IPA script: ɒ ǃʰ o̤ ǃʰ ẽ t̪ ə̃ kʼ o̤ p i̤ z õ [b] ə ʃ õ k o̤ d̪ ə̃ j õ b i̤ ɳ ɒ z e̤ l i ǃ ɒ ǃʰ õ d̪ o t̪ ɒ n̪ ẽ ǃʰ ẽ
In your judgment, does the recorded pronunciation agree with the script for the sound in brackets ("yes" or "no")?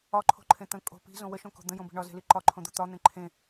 no